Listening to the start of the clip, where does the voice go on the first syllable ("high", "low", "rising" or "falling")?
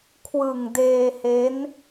low